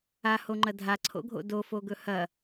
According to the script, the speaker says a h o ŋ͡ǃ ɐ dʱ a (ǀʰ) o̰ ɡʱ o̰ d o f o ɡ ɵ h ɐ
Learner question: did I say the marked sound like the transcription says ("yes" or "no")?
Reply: yes